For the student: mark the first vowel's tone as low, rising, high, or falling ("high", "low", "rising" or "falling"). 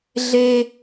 high